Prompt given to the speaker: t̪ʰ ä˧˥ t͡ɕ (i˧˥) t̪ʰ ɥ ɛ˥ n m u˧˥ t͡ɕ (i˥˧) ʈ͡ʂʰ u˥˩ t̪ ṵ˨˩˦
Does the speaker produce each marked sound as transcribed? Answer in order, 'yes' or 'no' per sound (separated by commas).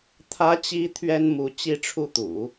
yes, yes